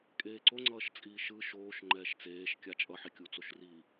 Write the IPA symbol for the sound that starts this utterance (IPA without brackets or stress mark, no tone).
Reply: kʼ